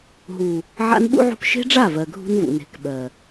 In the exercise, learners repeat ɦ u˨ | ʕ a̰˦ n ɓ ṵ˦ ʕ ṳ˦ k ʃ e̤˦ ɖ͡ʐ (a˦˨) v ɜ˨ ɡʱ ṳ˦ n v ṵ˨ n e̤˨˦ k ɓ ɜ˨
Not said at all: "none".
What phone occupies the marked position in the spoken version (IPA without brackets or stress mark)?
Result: a˦˨